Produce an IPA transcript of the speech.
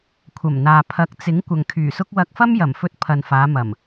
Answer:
kʷʰ ɐ˨˩ m n̪ aː˨ pʰ ɐ˨˥ k̚ t͡s ɪ˨˥ ŋ kʷ ɐ˨ ŋ kʰ yː˨˩ s ʊ˥ k̚ w ɐ˧ k̚ f ɐ˥ m j ɐ˨˩ m f ɵ˧ t̚ pʰ ɐ˨ n f aː˨˧ m ɐ˨˩ m

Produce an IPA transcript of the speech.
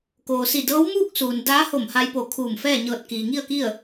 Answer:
k oː˩ s i˧˩ d ɤː˧˥ w m uː˥˨ k̚ s uː˩ n d aː˧˥ h o˧˩ m h a˧ j p o˧˩ kʰ uː˧˩ m f ɛː˥˨ ɲ ɤː˧˩ t̚ k iː˩ ŋ i˥˨ ə̯ k i˥˨ ə̯

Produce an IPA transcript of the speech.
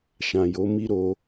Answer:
ʃ ã˨ j o˨˦ m i˦ ɾ o˧

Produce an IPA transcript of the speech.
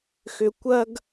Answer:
x ʏ˧ kʷ ɐ˥ ɡ

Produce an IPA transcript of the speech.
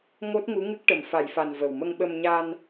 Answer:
ŋ o˦˥ t̚ ŋ u˧˥ ŋ ɨ˦˥ k̚ ʈ ə˨˩ m f a˨˩˨ j f a˨˩ n v ə˨˩ w m ə˧ ŋ ɓ ə˧ m ɲ a˧ n

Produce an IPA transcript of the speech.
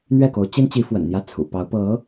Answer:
n̪ ɥ ɛ˥˩ k o˧˥ ʊ̯ t͡ɕ i˥ n t͡ɕ i˧˥ f w ə̰˨˩ n n̪ j ä˥˩ t͡sʰ ṵ˨˩ p ɑ˧˥ ʊ̯ p ɤ˧˥

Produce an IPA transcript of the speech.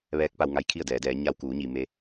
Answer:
ʋ ɛː˧˥ k̚ p a˧ w ŋ a˧˥ j kʰ i˥˨ ə̯ d ɛː˩˧ d ɛː˩˧ ɲ a˧ w k uː˩˧ ɲ i˩ m e˧

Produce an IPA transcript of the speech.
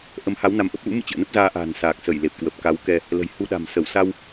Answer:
ʔ ə˨˦ m h a˨˦ w n a˨˦ m ʔ ə˦˥ p̚ l ṵ˧˥ m ɨ̰˧˨ t͡ɕ ɨ̰˧˨ ə̯ n ə˦˥ p̚ z aː˧ ʔ a̤ː˨˩ n s aː˨˩ k̚ s ə˧˩ j l e˨˩ p̚ k w ə˨˩ p̚ k a˨˦ w k ɛ˧ | l ə̤˨˩ j h u˧ ɗ a̤˨˩ m s ə˧˩ w s a˧ w

